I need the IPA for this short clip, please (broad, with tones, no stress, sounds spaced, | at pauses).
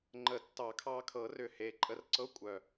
ŋ͡ǃ ə˨˩˦ tː ɑ˨˩˦ kʰ ɑ˧ kʰ ɤ˨˩˦ r ʏ˨˩ h e˨˩ ǃʼ ə˧ r ǀ ɤ˧˥˧ kʷʼ œ˨˩